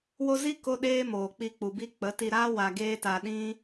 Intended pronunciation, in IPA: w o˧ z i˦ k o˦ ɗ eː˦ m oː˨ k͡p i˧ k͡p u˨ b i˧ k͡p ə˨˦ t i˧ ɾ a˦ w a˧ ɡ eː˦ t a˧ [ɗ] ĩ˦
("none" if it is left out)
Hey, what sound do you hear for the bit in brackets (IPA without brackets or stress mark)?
ɗ